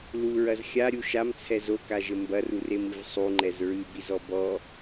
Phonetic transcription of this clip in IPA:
l u ɹ ɐ z xʲ a ɾʲ u ʃ a m t͡sʰ ɛ z o k a ʒ ɘ m b ɐ r u r e m ɨ v sˤ u ŋ͡ǃ ɛ z ɹ ɨ b i z ɔ b ɔ

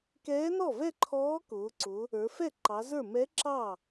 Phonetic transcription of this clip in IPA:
k ɛː˧˥ n ɔ˥˩ v ɛ˥˧ ǃʰ ɔː˧˥ k ʊː˩˧ ǀ ʊ˩˧ | ə˞˩˧ f ɛ˥˩ ǃ ɑ˩˧ z ə˞˥˩ m ɛ˧˥ ǁ ɑ˥˩

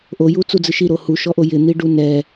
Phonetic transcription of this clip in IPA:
ʔ o j u t͡s u d͡z ɨ ʃ i ɾ o h u ʃ ɔ ʔ o j ɪ n̪ i ɖ u n ɛ

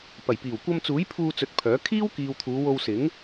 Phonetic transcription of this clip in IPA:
p ɐ˨˩ j p iː˨˩ w kʷ ɐ˧ m t͡s uː˨˥ j pʰ uː˧ t͡s ɵ˨˥ t̚ pʰ œː˨˥ kʰ iː˥ w k iː˨ w t̪ʰ uː˨˧ w o˧ w s ɪ˨˥ ŋ

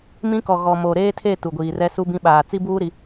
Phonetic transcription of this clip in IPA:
m ĩ˦ k ɔ˨ ɣ ɔ˨ m o˨ ɾ eː˦ tʰ e˦˨ t u˨ ɡʷ iː˨ r ɛ˦ s u˦ b ĩ˦ ɓ aː˨ t͡s i˦ b uː˦ ɾ i˨

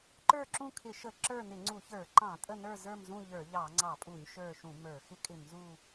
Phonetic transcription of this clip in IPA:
ǃ ə˞˦˨ ǁ ũ˦˨ kʰ ɪ˧˩˧ ʃ ə˧˩˧ ǁ ə˞˦˨ n ɪ˧˩˧ ŋ͡ǀ u˧˩˧ ç ə˞˧˩˧ ǃ ɑ̃˧˩˧ tʼ ə˦˨ n ə˞˦˨ z ə˞˦˨ m z ũ˦˨ ʎ ə˞˧˩˧ ʎ ɑ˧˩˧ ŋ͡ǀ ɑ˧˩˧ pʼ u˧˩˧ ɲ ʃ ə˞˦˨ ʃ ũ˧˩˧ m ə˞˧˩˧ x ɪ˦˨ kʼ ɪ˧˩˧ m z u˦˨

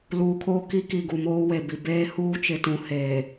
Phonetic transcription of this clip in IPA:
l uː˨ kʰ oː˦ k i˦ k i˨ ɡ u˨ m oː˦ w e˨ b i˨ b eː˦ h uː˦ t͡ʃ ɪ˨ t ũ˨ h eː˨

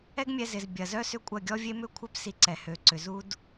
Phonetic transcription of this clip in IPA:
ɛ˦ ɡ mʲ ɛ˧ z ɪ˨ z bʲ ɐ˨ z œ˦ s ʏ˦ kʷʼ ɐ˦˨ ɡʲ ɔ˧ vʲ e˧ m ʏ˦˨ kʷʰ œ˦ p s i˧ ǀ ɛ˨ h ø˨ ǀ ʏ˨ z u˦ d

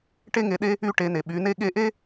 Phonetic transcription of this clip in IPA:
ʈ e˥ ŋ e˧ ɗ e˥ | y˧ ʈ e˩˧ n e˩ ɓ y˩˧ n e˥ ɠ e˧˥ ʔ e˥

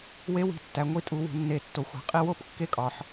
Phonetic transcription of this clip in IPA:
w e˦˥ w i̤˨˥ tː æ˩˧ ŋʷ i˦˥ tʼ u˩˧ w ṳ˩˧ nː e˨˥ tː o˩˧ xʷ æ̤˨˥ qʼ i˦˥ w o˦˥ p kː e˦˥ kʼ ɒ˩˧ ħ

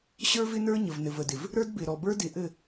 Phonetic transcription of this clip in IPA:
ɕ ə˞˦ v ɪ˦ n ə˞˦ ɲ ə˨ v n ɘ˨ v ə˨ d ɪ˨ v | ɾ ə˞˦ d b ɪ˨ ɾ ɔ˨ b ə˞˦ d ɪ˨ ʔ ɘ˦˨

